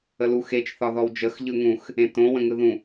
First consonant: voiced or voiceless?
voiced